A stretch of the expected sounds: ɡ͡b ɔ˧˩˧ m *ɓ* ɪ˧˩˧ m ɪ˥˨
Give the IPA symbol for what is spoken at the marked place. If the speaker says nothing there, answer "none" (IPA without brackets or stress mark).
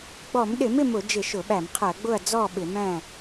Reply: ɗ